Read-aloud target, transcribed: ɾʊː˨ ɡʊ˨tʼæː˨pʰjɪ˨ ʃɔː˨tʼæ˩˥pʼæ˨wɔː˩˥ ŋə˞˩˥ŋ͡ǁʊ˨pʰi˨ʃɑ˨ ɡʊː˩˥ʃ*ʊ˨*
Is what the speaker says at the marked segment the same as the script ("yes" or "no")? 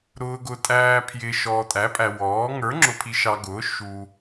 no